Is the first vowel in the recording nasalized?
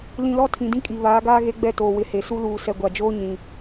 yes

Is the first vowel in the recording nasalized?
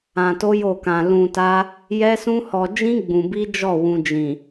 yes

